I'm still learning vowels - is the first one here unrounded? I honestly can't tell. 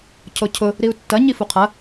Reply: no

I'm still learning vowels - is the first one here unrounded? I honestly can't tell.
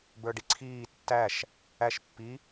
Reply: yes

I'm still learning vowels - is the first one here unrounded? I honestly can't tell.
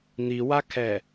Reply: yes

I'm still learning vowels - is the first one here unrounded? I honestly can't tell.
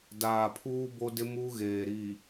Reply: yes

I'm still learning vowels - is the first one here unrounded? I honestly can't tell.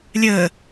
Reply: yes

